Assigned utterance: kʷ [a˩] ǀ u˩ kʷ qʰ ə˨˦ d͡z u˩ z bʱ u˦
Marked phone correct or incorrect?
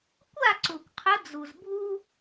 incorrect